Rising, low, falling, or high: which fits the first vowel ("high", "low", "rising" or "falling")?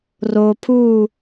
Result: low